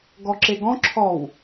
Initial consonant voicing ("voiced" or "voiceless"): voiced